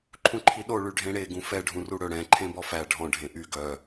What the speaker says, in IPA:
ǃʰ ũ ǃʰ i ɗ o ɭ y ɖʱ ẽ ɽ e ɡ ũ f ɛ ɖʱ ũ r u ɽ ɵ ɽ ɛ̃ ǃʰ ẽ b ɔ f æ ɖʱ ɔ̃ ɖʱ ẽ ʔ y ɡ œ

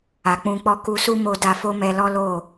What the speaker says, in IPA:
a˨ k͡p ũ˧ k͡p ɔ˦ k u˧ s u˦ m o˧ d a˧ f o˦ m ɛ˧ l ɔ˦ l o˦˨

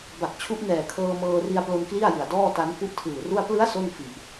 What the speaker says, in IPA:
b a˨˩ k̚ t͡ɕʰ u˦˥ ʔ n ɛː˨˩ kʰ ɤː˧ m ɤː˧ r i˧ a̯ p l o˧ n k l i˥˩ a̯ j ɯ˨˩ a̯ d ɔː˥˩ t a˦˥ n k u˥˩ ʔ tʰ ɯː˨˩ r u˥˩ a̯ p l ɯ˦˥ a̯ s o˥˩ n f i˨˩ ʔ

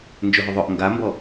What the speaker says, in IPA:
n d͡ʒ ɵ ɦ ʏ ðˤ ɵ ʔ ŋ ɡ a m b ɔ

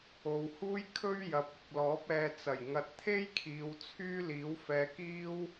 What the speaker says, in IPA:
o˨ w h uː˥ j kʰ ɵ˥ ɥ j ɐ˨ p̚ ɪ˨ k̚ l ɔː˨˥ p̚ ɛː˨ t͡s ɐ˨˩ j ŋ ɐ˨ t̚ t̪ʰ e˥ j kʰ iː˨˧ w t͡sʰ yː˥ l iː˨˥ w f ɛː˨˧ k iː˥ w

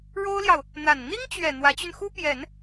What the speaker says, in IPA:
ɻ o˥ ʊ̯ l j ɑ˨ ʊ̯ | n̪ a˨˩ n n̪ i˥ ŋ t͡ɕ ɥ ɛ˨˩ n̪ w ä˧˥ t͡ɕ y˧ n x u˥ p j ɛ˨˩˦ n

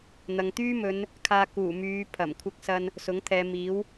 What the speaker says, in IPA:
n̪ ɐ˨ ŋ t̪ yː˥ m ɵ˨˧ n | kʰ aː˧ k uː˨˩ m yː˨˧ pʰ ɐ˨˩ m kʷʰ ɪ˧ k̚ s ɐ˧ n | s ʊ˨˥ ŋ t̪ʰ ɛː˨˧ m iː˨˥ w

